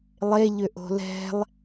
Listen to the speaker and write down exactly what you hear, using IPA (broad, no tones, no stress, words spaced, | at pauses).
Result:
lˠeʎʏ ʔo̤lɛ̤lˠ